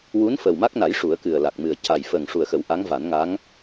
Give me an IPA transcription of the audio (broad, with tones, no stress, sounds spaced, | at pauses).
w u˧˥ n f əː˨˩ w m a˦˥ k̚ n a˨˩˦ j ʂ u˨˩˦ ə̯ k ɨ˨˩ ə̯ l a˨˩ k̚ m ɨ˨˩ ə̯ c a˨˩ j f əː˨˩ ŋ ʂ u˨˩ ə̯ x ə˨˩˦ w ʔ a˧˥ ŋ v a˨˩˦ n ŋ a˧˥ ŋ